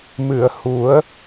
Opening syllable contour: low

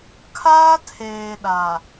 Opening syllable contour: high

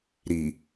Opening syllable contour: low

